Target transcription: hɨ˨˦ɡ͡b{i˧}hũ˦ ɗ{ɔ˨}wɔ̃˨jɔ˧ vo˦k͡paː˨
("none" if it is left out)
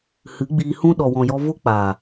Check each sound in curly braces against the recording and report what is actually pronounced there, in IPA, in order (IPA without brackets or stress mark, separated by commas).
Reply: iː˧, ɔ˨